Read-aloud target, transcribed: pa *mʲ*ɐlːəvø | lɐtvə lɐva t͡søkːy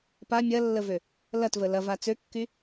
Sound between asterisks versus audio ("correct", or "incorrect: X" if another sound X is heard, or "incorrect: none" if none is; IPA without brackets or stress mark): correct